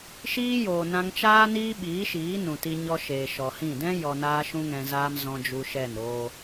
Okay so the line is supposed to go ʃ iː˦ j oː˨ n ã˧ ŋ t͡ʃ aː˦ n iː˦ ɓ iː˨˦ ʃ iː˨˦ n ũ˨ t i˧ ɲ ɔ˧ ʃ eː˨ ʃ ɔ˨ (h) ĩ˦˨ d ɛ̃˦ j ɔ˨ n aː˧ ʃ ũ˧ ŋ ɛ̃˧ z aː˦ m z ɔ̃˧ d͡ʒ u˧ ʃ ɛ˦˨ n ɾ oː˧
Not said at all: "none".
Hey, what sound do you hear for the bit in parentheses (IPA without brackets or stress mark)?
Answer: h